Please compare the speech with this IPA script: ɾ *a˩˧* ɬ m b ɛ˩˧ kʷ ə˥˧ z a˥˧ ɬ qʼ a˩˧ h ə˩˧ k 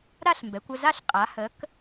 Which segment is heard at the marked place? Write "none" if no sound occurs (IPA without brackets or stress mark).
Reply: a˥˧